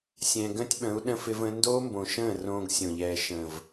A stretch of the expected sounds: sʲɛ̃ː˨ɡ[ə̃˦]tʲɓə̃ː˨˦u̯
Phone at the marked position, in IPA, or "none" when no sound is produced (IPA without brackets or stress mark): ə̃˦